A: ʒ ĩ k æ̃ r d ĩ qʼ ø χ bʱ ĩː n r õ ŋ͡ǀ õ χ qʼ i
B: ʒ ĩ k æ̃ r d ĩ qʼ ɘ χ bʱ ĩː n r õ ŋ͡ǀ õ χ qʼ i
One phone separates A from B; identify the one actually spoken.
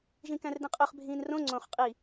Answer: A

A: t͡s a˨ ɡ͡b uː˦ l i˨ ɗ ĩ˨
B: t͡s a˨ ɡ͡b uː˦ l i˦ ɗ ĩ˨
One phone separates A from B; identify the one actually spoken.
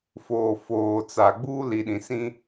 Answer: A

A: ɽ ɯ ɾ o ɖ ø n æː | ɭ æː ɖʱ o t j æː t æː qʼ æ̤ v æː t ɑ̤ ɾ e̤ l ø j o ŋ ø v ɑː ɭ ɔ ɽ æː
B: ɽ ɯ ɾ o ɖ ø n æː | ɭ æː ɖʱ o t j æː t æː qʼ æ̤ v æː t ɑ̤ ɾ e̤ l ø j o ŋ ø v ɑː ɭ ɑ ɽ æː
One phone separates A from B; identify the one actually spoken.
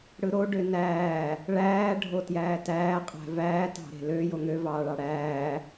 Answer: B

